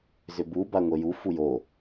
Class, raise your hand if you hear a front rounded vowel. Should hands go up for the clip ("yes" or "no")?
yes